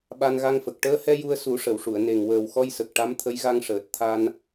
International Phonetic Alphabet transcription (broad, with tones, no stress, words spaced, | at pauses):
ɓa˧nɣa˧ŋfə˨˩k̚ ʈəː˧hɛ˧ ju˧ə̯su˨˩˦ʂə˨˩˨wʂu˨˩˨ə̯ ne˨˩ŋ wəː˨˩wxɔ˧jsə˨˩k̚ ʈa˧˥mt̪ʰə˧˥jɣa˧ŋʂəː˨˩t̚ t̪ʰa˧n